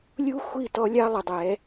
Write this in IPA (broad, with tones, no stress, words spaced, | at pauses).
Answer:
lʲu˦xʷi˦˨ tɔ˦lʲɑ˦ lˠə˨dˤɛ˨˦